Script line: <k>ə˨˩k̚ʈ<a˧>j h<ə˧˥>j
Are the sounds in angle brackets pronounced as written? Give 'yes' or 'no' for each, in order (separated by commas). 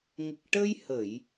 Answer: no, no, no